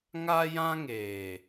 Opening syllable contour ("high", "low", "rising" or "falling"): high